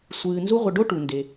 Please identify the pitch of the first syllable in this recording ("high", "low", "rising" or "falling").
low